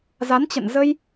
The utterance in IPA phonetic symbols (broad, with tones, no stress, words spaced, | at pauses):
za˨˦nt͡ɕə̰˧˨n zə˧j